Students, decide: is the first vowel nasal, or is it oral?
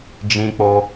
nasal